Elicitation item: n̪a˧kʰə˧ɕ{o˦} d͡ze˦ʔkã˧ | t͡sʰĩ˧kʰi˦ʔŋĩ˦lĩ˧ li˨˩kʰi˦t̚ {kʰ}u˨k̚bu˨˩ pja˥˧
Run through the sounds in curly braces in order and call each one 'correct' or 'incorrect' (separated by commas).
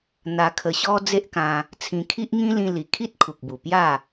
incorrect, correct